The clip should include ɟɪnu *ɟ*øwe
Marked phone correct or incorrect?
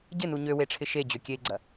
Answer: incorrect